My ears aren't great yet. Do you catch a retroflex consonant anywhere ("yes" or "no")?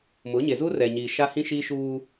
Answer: no